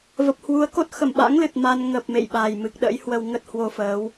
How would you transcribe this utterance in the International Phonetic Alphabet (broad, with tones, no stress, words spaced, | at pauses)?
və˨˩p̚hwu˨˦ə̯ko˦˥t̚ xə˧˩mɓa̰˧˥ŋ lɨ˨˩t̚ma˧n ŋə˨˩p̚ mḛ˧˨jɓa˨˩j mɨ˨˩k̚ɗə̰˧˥j hwə˧wŋə˦˥t̚ hwo˧fəː˨˦w